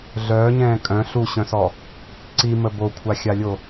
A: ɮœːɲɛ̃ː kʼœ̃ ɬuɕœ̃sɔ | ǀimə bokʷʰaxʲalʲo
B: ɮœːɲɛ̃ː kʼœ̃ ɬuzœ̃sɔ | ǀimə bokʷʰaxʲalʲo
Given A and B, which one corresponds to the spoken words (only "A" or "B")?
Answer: A